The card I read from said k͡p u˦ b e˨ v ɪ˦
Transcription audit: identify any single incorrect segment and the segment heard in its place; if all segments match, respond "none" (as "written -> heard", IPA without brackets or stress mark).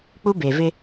none